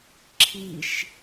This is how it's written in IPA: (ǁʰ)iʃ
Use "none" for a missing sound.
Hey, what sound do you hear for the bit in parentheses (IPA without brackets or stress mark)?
ǁʰ